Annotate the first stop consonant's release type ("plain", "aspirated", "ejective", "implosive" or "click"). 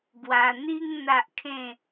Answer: plain